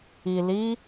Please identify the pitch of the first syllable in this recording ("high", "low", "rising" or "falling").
low